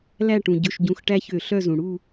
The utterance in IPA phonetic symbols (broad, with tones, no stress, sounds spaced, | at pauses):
l æ˦˨ ʈ ũ˩ ɟ ɵ˩˧˩ ʃ ɟ ũ˩˧˩ x ʈ æ˦ ç ø˧˩˧ ɬ œ˦˨ z ũ˩ ɽ u˦˨